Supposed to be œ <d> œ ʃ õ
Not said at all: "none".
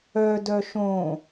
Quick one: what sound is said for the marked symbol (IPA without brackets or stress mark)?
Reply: d